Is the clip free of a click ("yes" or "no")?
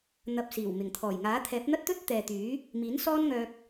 yes